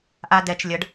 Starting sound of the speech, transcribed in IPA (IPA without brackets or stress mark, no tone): ʔ